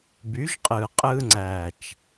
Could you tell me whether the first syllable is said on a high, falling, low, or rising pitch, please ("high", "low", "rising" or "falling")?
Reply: rising